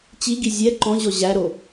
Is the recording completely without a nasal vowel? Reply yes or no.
no